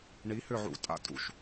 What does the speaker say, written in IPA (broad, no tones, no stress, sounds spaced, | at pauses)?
ɳ i h ʏ ʕ ṵ tʼ a̰ tʼ ṵ ʃ